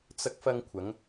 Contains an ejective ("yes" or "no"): no